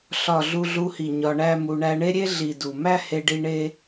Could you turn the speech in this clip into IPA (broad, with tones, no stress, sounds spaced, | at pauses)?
ɬ ɒ˨ ɮ u˧ ɮ u˧ h i˨ ɲ ɒ˧ ɳ æ˦ m u˧ ɳ æ˧ ɳ e˦ ɾʲ e˦ ɮ i˨ d u˨ m æ˦ h e˧ ɖ i˧ ɳ e˦